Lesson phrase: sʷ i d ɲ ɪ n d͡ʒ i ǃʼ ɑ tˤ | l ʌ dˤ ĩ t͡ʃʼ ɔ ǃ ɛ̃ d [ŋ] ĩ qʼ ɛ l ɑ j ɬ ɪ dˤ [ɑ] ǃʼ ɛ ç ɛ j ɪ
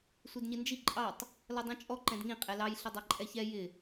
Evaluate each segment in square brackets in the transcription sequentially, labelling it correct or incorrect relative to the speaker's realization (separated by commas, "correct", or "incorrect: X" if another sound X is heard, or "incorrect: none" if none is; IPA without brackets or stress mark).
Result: correct, correct